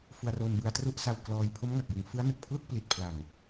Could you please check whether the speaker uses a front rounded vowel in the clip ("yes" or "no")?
no